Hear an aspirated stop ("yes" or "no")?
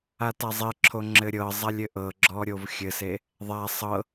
yes